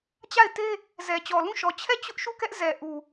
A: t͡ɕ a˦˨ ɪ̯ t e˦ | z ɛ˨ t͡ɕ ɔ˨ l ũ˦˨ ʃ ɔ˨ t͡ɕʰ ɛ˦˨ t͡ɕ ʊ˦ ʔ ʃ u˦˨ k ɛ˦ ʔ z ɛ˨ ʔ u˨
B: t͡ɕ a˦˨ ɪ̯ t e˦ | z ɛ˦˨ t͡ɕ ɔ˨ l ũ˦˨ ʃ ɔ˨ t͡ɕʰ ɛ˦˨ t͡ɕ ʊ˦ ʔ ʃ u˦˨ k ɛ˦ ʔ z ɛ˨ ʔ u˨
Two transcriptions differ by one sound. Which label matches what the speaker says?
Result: A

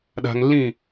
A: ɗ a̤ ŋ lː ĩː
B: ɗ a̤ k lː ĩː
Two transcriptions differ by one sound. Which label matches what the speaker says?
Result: A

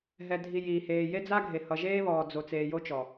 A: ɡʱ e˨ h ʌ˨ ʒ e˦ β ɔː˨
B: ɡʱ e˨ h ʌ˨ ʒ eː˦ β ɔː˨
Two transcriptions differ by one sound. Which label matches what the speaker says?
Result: B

